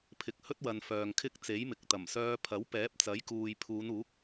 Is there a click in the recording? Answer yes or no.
no